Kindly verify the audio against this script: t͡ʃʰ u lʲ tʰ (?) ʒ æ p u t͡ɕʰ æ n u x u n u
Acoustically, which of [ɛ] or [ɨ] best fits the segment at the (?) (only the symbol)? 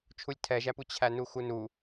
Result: ɛ